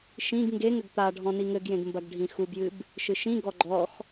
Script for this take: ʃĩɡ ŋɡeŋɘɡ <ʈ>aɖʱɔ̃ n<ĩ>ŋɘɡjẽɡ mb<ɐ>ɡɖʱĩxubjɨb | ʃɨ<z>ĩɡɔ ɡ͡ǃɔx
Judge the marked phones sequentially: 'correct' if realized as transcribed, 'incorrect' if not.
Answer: incorrect: t̪, incorrect: i, correct, incorrect: ʃ

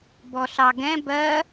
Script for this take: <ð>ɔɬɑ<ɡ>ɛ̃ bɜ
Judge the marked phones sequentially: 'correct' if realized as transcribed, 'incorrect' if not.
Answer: incorrect: b, correct

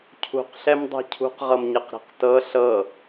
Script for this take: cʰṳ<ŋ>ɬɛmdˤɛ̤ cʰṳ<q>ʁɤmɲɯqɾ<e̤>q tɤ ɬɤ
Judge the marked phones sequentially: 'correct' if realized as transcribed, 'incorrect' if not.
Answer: incorrect: q, correct, correct

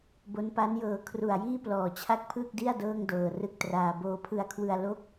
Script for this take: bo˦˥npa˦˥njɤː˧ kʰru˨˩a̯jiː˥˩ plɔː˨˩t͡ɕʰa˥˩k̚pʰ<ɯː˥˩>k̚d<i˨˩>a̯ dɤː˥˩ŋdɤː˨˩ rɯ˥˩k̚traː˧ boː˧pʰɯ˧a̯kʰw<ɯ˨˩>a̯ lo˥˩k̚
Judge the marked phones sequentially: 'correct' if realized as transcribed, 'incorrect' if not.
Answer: correct, incorrect: i˥˩, incorrect: ɯ˧

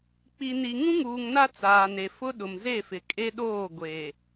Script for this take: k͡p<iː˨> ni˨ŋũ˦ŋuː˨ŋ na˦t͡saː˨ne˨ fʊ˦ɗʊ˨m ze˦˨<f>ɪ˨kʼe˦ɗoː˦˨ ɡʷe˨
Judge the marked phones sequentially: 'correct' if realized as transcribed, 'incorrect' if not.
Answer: incorrect: i˨, correct

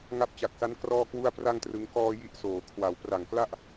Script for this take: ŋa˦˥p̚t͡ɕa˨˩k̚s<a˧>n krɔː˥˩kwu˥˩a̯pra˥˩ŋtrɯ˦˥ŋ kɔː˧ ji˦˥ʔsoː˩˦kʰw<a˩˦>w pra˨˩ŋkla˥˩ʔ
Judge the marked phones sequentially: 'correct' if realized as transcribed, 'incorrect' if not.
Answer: incorrect: a˦˥, correct

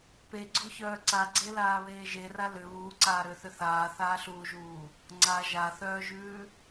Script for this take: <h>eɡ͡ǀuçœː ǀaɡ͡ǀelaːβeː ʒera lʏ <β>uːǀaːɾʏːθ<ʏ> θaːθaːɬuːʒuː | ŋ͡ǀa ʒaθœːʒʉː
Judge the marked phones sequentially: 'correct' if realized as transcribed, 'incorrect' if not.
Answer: incorrect: p, correct, correct

